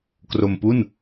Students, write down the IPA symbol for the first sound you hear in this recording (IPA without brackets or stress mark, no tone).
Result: k